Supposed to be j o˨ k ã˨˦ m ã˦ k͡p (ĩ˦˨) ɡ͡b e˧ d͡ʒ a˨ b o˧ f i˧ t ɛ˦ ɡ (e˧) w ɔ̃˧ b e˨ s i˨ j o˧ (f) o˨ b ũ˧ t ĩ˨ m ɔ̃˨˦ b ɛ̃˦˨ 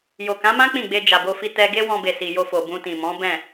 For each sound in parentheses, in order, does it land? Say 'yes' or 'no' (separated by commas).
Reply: yes, no, yes